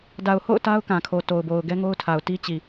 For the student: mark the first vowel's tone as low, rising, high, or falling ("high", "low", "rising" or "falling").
low